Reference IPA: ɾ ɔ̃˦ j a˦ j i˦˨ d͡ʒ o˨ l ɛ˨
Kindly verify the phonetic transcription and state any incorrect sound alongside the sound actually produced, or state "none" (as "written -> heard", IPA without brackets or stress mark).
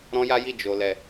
none